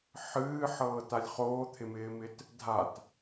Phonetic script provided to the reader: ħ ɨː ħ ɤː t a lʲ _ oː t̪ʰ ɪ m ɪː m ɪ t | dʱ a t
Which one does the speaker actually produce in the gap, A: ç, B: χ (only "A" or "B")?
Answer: B